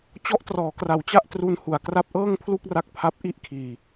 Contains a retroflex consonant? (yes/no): no